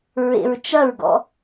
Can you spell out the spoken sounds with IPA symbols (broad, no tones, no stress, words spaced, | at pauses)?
ɹḛɹt͡ʃɐɹɡɔ̰